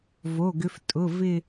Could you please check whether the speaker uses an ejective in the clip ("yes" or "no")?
yes